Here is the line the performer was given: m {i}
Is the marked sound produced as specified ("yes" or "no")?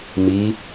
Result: yes